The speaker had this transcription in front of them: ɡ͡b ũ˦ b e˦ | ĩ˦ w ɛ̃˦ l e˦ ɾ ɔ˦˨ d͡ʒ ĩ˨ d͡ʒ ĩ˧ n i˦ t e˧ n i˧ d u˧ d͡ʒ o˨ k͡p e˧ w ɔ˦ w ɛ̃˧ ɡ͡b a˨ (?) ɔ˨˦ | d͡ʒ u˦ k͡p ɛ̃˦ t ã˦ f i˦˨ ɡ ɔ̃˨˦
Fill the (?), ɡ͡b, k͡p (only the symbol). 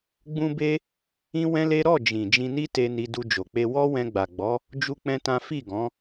ɡ͡b